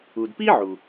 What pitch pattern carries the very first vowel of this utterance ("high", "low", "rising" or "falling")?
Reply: low